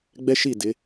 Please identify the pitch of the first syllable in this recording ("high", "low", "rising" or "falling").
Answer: high